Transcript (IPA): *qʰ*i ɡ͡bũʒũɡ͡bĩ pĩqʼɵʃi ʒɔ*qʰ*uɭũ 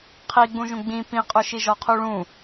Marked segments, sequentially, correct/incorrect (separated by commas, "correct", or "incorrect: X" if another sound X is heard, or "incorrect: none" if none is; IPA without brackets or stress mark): correct, correct